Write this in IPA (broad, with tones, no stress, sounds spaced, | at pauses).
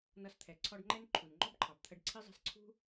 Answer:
n ʌ˧ s t̪ʰ ɛ˨ ǀʰ ɔ˧ ɖ ŋ͡ǃ ɛ˦ n ǃʰ u˨ n ŋ͡ǃ ɔ˦ b ǃʰ ɑ˨ b t̪ʰ ə˧ ɖ ǀʰ i˦ zˤ ɛ̤˦ s ǀʰ ṳ˦